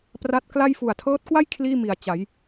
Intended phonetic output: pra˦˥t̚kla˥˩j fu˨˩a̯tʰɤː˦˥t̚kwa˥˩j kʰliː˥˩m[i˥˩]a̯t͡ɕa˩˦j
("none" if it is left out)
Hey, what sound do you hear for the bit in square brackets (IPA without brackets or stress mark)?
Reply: i˨˩